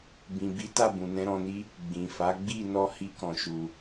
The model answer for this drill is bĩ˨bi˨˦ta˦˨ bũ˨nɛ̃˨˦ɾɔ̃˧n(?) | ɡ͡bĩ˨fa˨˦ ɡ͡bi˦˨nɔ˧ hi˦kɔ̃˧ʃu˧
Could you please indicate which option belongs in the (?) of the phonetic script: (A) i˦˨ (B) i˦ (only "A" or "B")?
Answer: B